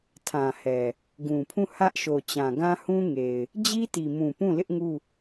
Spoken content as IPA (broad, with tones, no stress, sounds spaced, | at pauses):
tʰ ã˨ h ɛ˨ | ɡ ũ˨ pʰ ũ˦˨ h ä˦ ʔ ʃ o˨ t͡ɕ ã˨ ɡ ã˦ h ũ˦ ŋ e˨ ɪ̯ | d͡ʑ i˦ t i˨ m ũ˨ p ũ˦˨ l ɪ˦ ʔ ŋ u˦˨